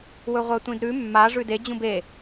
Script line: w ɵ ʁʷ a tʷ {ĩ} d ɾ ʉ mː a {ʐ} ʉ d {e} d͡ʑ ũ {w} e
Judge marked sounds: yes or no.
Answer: yes, yes, yes, no

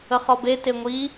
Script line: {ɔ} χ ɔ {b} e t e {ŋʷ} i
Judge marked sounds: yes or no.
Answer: no, yes, yes

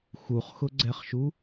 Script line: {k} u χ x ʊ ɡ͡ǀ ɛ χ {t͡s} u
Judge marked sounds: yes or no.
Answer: no, no

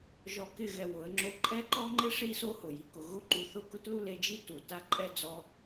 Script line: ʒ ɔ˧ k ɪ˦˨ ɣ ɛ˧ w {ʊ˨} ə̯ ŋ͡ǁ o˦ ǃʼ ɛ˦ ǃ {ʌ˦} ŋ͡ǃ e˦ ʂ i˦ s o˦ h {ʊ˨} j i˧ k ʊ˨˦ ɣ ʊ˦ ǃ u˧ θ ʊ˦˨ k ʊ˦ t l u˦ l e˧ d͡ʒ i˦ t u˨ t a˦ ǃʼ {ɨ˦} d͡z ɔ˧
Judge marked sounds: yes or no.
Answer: no, no, yes, no

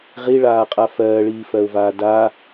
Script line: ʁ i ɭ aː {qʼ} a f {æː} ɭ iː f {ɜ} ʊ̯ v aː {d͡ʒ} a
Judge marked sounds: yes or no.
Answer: yes, no, yes, no

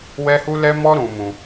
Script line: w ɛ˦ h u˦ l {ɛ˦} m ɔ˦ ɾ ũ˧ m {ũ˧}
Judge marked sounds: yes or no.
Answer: yes, yes

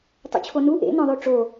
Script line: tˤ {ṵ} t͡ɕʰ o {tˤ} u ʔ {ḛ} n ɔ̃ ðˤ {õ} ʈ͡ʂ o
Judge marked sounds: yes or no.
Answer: yes, no, yes, no

